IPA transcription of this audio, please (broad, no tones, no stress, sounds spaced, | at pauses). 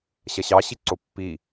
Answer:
ɕ ɐ ɕ ɑ ɕ i ǀ o pː i